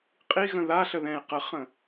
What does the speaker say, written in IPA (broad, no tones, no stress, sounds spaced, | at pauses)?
qʼ i ɣ ə̃ ð a ɬ ə ð ɛ̃ e̯ q ə χ ə̃